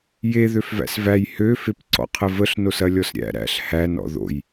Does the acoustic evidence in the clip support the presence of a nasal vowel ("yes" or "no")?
no